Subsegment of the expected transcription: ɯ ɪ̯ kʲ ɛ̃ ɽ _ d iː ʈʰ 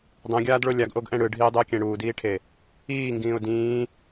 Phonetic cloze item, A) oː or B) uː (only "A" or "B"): B